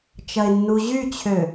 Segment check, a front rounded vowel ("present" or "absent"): present